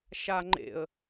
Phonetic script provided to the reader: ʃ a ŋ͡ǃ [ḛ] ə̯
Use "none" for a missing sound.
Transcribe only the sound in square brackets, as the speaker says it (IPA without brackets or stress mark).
ḛ